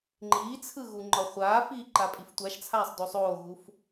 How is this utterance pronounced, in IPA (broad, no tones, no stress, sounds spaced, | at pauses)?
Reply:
ŋ͡ǃ iː t͡sʰ ɯ ɣ u ŋ͡ǃ ɒ χʷ aː f iː ǃ a pʼ i f tʷ a ʃ t͡sʰ aː sˤ d o sˤ oː ɣ u f